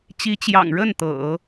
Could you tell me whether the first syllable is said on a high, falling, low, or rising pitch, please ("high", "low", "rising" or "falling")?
rising